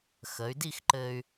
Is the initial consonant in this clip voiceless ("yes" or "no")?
yes